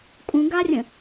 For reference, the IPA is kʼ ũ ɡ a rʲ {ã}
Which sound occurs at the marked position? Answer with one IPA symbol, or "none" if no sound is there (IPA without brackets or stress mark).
ə̃